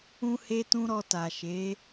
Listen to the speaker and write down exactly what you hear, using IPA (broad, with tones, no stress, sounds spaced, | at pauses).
ũ˦ h e˦ t ũ˦ ɾ ɔ˧ t a˨ ʃ e˨˦